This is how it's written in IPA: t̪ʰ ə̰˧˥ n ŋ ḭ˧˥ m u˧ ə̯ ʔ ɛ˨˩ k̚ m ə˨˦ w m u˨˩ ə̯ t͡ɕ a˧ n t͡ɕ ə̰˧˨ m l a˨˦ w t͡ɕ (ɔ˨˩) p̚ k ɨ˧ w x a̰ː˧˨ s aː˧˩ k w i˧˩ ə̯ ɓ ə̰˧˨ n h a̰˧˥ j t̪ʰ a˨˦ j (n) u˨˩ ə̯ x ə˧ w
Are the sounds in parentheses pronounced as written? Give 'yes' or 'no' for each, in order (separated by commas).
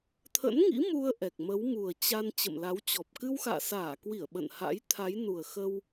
yes, yes